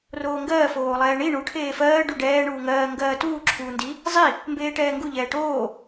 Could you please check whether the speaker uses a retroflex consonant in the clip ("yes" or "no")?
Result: yes